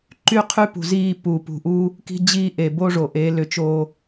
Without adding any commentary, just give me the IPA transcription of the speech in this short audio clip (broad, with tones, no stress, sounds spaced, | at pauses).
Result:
ǃ y˦ qʰ y˦ p ṳ˨ z iː˦˨ p u˨ p ṳ˨ ʔ u˦ | k i̤˦ d͡ʑ iː˦ ʔ eː˨ b o˦ ʐ o˨ ʔ eː˨˦ l ʏ˨ t͡ʃ oː˦